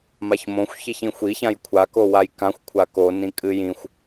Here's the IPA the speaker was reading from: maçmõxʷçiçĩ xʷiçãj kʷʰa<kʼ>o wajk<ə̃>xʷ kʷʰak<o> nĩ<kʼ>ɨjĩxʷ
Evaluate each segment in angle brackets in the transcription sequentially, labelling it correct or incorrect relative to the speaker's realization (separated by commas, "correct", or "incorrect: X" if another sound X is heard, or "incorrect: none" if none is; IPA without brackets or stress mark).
incorrect: k, incorrect: ã, correct, correct